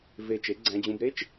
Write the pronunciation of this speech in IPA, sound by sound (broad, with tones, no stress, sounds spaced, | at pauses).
v e˧ t͡ʃ e˩˥ ɡ͡ǀ æ̃˧ d͡ʑ ũ˧ b ɾ e˥ t͡ʃ